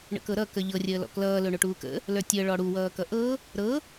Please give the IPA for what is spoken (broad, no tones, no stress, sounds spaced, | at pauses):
ɳ ə̰ k ɤ ɾ ʌ k ə ʎ ɤ rʲ əː l ɔ̰ k l ʌː l ɵ ɳ ɵ ʈ uː k ə̰ | l ə˞ tʲ əː ɭ ɔ ɽ u w ʌː k ʌ ʔ ɤ | ɾ ɤ